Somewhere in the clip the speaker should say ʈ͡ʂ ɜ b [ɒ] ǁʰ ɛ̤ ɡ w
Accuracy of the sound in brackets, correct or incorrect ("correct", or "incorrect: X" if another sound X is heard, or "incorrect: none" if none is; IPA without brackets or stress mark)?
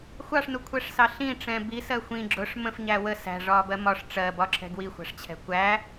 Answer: correct